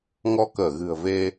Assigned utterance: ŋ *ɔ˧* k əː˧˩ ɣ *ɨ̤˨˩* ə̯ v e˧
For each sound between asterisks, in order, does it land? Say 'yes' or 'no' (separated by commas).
yes, yes